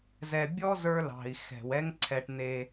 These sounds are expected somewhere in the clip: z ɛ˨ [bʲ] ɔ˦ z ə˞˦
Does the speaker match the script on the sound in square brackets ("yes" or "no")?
yes